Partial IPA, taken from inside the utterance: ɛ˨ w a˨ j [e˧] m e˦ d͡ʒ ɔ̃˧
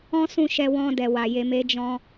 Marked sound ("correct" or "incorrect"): correct